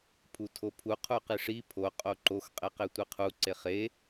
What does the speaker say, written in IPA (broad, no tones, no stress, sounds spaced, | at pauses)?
pʰ u tʰ o pʰ u qʰ u q i ʂ i pʰ o qʼ o ǃ o x qʼ e q e tʷ i qʰ u ǀ e χ e